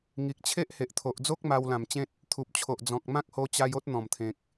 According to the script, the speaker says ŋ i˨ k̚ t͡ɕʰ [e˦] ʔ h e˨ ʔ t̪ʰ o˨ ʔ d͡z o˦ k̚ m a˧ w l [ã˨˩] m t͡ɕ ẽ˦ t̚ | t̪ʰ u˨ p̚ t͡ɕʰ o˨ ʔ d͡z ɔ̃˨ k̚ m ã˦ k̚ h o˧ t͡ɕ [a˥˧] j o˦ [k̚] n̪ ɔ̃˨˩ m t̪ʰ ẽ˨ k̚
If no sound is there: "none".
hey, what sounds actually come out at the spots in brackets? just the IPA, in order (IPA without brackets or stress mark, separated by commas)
e˦, ã˨˩, a˧, t̚